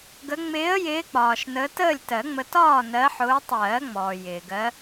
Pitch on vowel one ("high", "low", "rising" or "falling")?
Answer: rising